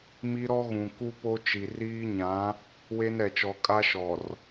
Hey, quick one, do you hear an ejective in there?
yes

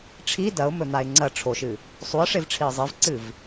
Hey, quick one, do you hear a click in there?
yes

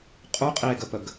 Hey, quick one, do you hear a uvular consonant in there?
yes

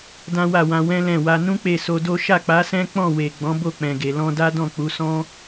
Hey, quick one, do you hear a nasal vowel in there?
yes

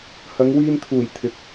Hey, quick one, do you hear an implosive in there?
no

